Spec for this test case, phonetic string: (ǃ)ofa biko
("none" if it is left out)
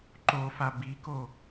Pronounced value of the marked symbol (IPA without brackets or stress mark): ǃ